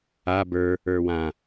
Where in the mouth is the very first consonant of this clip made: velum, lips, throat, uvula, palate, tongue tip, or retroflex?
lips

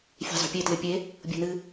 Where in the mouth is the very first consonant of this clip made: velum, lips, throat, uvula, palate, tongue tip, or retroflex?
lips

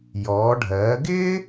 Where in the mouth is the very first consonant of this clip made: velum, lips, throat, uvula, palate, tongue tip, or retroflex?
palate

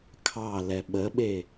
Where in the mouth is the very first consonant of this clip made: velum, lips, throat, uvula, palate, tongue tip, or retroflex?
velum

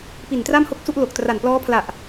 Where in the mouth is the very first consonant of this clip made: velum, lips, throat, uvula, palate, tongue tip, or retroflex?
lips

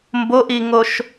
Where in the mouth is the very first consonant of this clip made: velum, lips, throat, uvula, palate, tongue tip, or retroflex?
lips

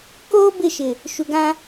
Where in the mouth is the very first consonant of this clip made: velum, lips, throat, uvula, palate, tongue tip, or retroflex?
velum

